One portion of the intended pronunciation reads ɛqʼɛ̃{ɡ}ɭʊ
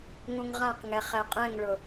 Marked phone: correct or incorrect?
incorrect